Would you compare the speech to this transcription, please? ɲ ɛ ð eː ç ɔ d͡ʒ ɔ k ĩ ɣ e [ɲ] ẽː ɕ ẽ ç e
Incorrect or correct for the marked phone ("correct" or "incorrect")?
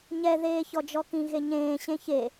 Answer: correct